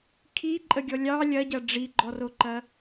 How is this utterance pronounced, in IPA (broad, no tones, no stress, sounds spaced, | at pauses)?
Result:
kʰ i ǃʼ ə ɡʲ ɔ lʲ ɑ lʲ ɐ ɟ ɐ ɖ͡ʐ i ɡ͡ǃ ɔ r o ǃ ɐ